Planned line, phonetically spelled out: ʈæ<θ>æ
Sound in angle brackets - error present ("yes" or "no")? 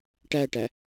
yes